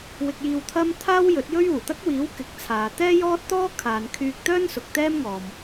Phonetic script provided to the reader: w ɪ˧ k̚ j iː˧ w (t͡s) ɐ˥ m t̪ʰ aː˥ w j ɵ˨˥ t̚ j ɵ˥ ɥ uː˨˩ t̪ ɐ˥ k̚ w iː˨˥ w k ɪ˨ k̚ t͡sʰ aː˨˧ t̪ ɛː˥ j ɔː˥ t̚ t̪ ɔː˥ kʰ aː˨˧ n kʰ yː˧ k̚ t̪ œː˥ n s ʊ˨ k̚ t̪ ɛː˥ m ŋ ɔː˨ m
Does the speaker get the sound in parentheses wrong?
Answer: yes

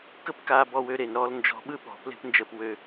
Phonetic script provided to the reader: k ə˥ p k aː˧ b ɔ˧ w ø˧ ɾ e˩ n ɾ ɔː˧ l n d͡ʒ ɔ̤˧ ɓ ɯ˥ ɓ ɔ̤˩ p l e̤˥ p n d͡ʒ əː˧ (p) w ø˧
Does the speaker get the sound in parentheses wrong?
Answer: no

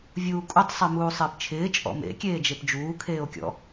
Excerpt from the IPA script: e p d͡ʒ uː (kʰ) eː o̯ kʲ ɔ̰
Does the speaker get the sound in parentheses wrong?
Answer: no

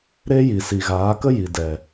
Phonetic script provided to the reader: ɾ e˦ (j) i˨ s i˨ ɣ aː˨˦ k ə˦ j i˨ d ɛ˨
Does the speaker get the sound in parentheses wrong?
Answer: no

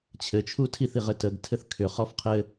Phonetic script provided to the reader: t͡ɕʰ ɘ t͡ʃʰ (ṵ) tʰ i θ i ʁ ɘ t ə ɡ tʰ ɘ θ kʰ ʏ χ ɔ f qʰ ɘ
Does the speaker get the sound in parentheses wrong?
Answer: yes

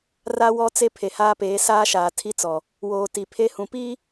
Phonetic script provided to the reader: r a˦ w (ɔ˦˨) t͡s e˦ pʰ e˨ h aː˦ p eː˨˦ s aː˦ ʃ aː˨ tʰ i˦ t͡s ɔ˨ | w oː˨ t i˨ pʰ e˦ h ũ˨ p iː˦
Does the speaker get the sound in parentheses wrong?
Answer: yes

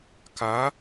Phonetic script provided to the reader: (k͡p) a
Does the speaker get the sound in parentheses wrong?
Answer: yes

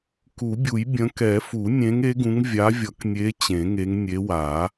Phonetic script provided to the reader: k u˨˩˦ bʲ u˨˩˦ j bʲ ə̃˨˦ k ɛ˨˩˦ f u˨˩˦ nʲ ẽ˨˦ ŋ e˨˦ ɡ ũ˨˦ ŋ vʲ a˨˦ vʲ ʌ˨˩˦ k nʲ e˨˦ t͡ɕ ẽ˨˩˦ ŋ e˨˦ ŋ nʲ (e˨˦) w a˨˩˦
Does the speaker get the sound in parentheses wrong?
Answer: no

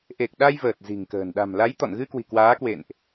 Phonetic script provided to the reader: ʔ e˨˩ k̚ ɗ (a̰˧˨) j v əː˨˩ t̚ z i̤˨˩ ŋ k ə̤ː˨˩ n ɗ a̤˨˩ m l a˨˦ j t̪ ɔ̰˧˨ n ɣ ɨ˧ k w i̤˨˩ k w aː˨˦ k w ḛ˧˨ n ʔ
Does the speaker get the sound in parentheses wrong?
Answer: yes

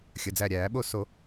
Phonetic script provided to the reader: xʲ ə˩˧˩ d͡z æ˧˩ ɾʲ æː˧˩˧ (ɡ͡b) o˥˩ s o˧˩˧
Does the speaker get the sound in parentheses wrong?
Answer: yes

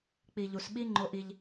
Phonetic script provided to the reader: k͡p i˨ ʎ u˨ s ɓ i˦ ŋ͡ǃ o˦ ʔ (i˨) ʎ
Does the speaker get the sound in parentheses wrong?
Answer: yes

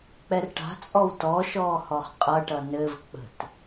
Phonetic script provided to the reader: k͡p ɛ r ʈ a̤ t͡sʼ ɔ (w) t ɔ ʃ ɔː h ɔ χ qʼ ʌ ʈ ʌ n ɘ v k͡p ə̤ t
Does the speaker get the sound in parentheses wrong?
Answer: no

